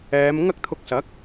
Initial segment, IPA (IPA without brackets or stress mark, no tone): ɛː